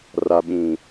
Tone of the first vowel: low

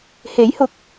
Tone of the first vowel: rising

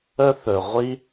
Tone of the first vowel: high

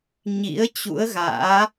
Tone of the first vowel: rising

